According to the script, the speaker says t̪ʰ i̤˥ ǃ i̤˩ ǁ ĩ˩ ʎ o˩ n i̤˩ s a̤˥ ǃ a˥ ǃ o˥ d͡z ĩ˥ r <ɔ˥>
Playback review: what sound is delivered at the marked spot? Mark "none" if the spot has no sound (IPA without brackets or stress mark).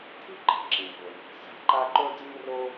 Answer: o˥